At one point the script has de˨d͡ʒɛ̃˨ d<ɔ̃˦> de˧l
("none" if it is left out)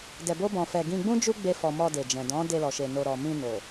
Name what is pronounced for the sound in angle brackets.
ɔ̃˨˦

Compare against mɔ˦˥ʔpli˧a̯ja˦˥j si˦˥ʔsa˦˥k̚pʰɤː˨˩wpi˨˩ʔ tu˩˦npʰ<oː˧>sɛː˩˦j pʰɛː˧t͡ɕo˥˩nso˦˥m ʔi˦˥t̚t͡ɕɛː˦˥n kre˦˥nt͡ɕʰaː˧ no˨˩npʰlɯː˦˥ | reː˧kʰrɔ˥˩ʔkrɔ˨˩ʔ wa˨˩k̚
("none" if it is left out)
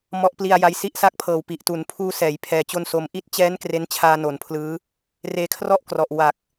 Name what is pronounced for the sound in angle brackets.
uː˧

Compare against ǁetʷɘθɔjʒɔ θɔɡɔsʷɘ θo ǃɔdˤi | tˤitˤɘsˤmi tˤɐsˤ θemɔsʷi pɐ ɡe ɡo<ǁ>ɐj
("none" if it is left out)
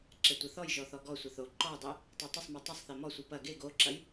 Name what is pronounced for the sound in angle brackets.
ǁ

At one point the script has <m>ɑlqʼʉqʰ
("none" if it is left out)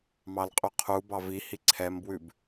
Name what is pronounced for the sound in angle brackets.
m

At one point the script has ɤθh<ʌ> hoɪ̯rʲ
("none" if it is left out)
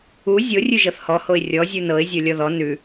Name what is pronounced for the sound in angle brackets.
ɔ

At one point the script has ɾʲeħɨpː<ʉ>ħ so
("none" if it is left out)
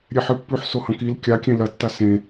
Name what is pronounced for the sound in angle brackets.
ʉ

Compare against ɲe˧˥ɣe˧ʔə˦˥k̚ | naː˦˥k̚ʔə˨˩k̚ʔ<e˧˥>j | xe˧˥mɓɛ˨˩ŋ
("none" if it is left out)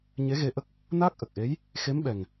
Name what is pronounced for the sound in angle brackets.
e˧˥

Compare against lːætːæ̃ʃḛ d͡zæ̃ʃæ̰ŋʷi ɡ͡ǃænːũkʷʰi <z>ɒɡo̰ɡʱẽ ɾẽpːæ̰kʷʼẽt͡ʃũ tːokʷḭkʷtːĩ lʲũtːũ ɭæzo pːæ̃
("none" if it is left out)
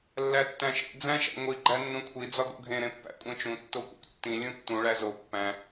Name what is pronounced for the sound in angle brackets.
d͡z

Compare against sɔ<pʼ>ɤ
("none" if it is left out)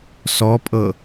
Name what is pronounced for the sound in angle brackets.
pʼ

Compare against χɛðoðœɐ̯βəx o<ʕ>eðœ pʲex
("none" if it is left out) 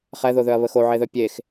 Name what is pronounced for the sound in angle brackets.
ʕ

